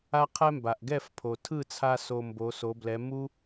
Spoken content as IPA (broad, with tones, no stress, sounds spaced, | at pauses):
a˥ qʰ ɛ˥ m b a˩ ʔ ɡ ɛ˥˩ f pʰ o˩ tʰ ɯ˥˩ t͡sʰ a˧ s o˧ m b o˩˥ s o˩˥ b l ɛ˩˥ m u˥